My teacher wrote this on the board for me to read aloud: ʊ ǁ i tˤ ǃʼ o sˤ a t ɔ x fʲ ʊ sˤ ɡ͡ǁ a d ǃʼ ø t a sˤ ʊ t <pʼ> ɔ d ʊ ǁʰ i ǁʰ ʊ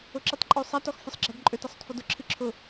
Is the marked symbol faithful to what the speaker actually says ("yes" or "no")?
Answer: no